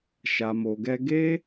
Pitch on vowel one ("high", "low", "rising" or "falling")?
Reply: low